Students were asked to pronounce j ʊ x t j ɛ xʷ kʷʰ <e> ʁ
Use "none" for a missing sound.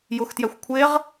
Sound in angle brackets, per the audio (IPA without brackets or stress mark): e